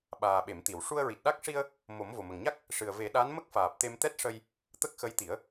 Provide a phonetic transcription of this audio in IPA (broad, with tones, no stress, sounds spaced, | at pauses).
ɓ aː˨˩ ɓ e˨˩˨ m t̪ i˨˩˨ w ʂ u˧ ə̯ ɹ i˨˩ t̚ ɗ a˦˥ k̚ ʂ i˧ ə̯ | m o˨˩˦ m v o˨˩ m ə˨˩ ŋ ɲ a˦˥ k̚ | ʂ ɨ˨˩ ə̯ v e˨˩˦ ɗ a˧˥ n m ə˦˥ k̚ f aː˨˩ p̚ t̪ e˧ m t̪ ɛ˦˥ t̚ ʂ ə˧ j | t̪ ə˦˥ k̚ x ə˧˥ j t̪ i˨˩˦ ə̯